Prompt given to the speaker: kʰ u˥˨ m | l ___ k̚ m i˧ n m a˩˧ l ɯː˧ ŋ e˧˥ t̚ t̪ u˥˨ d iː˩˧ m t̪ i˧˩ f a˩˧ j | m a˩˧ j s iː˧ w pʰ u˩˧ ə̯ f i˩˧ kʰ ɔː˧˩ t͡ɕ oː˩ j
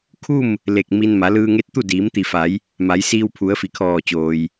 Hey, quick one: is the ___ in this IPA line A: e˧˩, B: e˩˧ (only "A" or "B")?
A